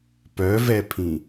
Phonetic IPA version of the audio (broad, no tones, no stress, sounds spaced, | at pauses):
p œ v ɛ pʰ ĩ